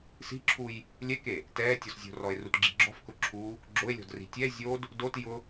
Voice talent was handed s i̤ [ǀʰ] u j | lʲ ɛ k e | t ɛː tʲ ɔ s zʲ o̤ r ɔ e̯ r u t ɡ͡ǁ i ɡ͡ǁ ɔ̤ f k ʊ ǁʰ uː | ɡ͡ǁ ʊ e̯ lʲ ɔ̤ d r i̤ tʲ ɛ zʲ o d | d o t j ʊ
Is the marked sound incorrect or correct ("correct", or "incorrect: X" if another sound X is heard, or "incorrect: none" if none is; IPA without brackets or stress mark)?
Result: incorrect: ǁʰ